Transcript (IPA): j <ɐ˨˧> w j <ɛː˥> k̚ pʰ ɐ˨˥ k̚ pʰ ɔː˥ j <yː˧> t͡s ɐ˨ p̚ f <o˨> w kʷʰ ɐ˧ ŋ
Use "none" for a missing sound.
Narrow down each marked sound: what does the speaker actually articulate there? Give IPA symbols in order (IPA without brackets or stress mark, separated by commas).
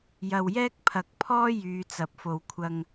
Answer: ɐ˨, ɛː˥, yː˨˧, o˨